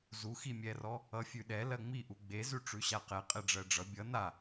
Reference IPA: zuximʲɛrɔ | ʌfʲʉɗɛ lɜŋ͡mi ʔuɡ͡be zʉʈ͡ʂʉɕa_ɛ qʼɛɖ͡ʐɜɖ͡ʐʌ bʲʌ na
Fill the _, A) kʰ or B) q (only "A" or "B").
B